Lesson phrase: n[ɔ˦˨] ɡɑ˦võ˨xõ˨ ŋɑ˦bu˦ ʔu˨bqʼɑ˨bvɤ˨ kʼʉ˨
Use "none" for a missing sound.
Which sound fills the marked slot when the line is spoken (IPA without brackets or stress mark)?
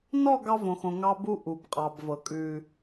ɔ˦˨